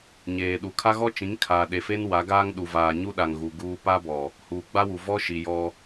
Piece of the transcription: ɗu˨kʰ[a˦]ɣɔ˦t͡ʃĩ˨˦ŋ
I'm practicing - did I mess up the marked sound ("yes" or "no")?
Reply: no